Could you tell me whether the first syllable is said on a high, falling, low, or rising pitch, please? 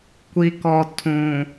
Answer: low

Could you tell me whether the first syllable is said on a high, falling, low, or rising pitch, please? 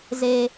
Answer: low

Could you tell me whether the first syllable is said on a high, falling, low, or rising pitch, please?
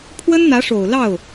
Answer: high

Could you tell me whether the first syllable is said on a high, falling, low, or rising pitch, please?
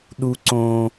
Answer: high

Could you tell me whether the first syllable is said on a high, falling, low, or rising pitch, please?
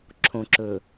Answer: low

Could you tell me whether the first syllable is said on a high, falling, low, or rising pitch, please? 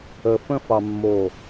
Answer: low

